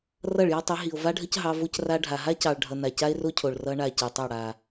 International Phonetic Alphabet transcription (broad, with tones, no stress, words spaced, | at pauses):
rʌ˦˨ɭjɑ˦tˤi˨˦ ɦi˨o̯ va˦ɖʱə˦c ɦɑ˦ vo˦c ra˦ɖʱa˨ ɦa˦cɑ˨ɭ ɖʱʌ˨ na˨ca˦e̯ro˦cʰo˨ɭ rʌ˦ɳa˦˨cɯ˨tˤʌ˦˨ ɽa˨